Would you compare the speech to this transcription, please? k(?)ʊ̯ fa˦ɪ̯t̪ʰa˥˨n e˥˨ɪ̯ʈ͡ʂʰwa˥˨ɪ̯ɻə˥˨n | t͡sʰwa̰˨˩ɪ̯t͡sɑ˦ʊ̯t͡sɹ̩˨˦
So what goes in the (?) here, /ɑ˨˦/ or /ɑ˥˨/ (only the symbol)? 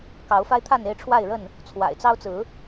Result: ɑ˨˦